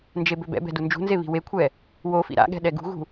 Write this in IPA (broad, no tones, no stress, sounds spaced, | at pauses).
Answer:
n d͡ʒ e b ø b ɛ̰ b ɛ̤ d u n d͡ʒ ṳ n z e β i̤ w e kʷʰ ɛ | w o f ḭ ɾ a̰ ɠ ɛ̤ ɗ ɛ ɡ ṳ ɣ ṳ